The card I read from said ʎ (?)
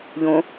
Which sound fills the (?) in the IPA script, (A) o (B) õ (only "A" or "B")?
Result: B